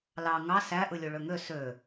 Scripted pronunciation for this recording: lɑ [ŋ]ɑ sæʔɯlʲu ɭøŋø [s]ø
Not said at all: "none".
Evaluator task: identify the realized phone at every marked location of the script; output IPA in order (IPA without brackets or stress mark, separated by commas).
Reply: ŋ, s